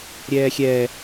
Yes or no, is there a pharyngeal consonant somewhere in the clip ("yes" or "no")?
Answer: no